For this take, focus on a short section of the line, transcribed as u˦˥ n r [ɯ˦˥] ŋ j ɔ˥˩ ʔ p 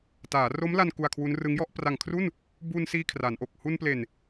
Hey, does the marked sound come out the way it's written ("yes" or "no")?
yes